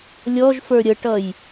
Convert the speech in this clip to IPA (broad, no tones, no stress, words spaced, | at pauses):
lʲɔʒfə˞ ɾʲəʈʌj